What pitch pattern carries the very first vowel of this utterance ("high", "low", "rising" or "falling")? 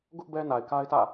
high